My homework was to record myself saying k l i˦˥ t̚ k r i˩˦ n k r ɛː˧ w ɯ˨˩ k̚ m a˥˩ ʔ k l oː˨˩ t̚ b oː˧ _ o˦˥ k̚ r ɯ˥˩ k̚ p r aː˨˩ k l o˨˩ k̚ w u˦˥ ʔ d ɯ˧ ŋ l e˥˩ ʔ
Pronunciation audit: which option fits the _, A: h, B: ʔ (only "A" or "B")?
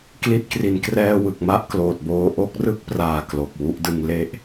B